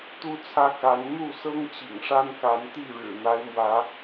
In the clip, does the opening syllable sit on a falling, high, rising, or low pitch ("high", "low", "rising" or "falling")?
high